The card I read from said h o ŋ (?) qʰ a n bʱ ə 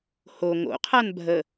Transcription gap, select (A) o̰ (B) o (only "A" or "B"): A